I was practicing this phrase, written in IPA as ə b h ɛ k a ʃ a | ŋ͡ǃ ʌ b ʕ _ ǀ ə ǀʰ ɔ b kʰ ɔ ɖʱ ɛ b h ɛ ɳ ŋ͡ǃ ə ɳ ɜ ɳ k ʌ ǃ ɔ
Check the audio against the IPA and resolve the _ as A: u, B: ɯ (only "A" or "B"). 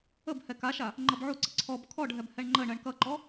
A